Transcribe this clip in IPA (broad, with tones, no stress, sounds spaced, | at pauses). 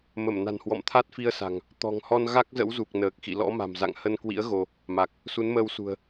m ə˧˩ m n a̤˨˩ n h w ɔ̰˧˨ m t̪ʰ a˦˥ t̚ f i˧ ə̯ s a̤˨˩ ŋ | t̪ ɔ̤˨˩ ŋ h ɔ˧ n ɣ a˦˥ k̚ z ə̰˧˥ w z u˨˩ k̚ n əː˨˩ k̚ x ḭ˧˨ l ɔ̰˧˥ m a̤˨˩ m z a̰˧˨ ŋ h ə˧ n k w ḭ˧˥ ə̯ ɣ o˧ | m a˨˩ k̚ | s u˨˦ n m əː˧ w s ṳ˨˩ ə̯